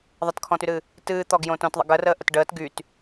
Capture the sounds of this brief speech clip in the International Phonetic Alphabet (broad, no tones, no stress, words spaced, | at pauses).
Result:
ðˤətkʰɔ̃tyɾɨ | tɨːt̪ɔɡjõ tõtðˤə̰ ɡərəːʔət ɖəːt ɡyt